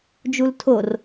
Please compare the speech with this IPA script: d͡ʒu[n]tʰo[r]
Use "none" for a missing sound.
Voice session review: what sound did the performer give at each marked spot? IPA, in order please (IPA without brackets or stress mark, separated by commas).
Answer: l, r